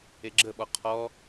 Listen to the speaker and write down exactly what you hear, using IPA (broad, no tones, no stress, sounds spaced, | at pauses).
e ɡ͡ǁ ə ɓ ɔ qʰ ɔ